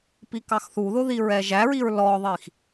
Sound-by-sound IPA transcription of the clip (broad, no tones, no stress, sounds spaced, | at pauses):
p i k ɑ x θ u ð ʊ ð i ɹ ɛ ʒ æ ɹ i ɹ l ɔ ðˤ i x